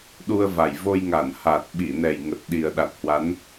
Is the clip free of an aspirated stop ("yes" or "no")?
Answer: yes